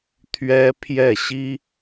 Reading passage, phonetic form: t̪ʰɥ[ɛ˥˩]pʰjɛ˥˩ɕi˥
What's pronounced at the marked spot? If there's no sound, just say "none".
ɛ˥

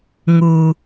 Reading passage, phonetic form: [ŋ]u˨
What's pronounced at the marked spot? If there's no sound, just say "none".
ŋ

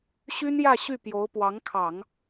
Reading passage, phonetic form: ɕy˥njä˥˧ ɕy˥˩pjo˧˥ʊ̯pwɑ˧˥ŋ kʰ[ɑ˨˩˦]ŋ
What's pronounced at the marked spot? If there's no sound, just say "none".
ɑ˨˩˦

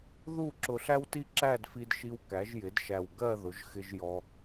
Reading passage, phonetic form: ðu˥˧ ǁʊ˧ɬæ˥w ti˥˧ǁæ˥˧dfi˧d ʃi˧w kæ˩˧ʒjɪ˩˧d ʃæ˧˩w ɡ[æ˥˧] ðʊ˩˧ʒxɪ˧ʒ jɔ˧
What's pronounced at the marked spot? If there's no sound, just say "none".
ɜ˥˧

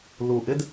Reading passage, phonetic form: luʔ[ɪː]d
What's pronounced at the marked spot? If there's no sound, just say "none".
ɪ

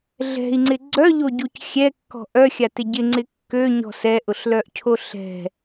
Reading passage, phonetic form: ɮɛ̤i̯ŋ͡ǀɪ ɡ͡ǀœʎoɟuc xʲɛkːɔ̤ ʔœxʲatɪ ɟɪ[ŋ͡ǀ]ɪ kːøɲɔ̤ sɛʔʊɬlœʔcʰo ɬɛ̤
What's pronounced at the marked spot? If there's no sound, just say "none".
ŋ͡ǀ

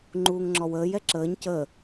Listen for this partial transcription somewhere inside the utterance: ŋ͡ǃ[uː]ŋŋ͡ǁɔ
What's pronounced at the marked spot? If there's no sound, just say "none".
uː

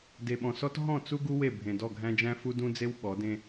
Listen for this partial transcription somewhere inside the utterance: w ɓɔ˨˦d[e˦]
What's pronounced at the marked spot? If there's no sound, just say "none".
ẽ˦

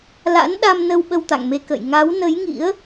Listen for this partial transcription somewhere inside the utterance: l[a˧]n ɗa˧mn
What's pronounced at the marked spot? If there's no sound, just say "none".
a̰˧˥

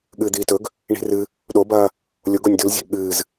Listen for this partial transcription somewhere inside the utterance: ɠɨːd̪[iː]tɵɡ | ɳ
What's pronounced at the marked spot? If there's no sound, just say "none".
iː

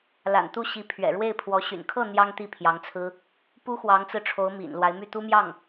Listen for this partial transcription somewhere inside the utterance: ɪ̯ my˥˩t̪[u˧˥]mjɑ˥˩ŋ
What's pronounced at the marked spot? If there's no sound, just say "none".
u˥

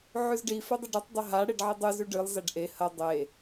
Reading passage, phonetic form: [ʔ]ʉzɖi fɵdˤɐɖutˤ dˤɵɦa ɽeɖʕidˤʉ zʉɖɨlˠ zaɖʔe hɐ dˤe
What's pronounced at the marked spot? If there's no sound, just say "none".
ʕ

